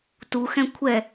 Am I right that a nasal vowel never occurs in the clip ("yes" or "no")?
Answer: no